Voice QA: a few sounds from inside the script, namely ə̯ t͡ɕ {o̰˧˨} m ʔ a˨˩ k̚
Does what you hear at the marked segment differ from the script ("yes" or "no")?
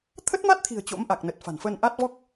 yes